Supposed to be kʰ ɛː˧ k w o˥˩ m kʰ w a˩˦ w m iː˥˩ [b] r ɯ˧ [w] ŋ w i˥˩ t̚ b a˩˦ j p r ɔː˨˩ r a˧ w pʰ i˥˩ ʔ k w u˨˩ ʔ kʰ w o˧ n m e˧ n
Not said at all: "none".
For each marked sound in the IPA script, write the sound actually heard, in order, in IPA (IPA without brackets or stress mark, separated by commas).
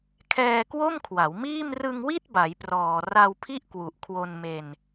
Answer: m, none